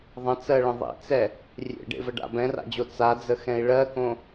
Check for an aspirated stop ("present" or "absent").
absent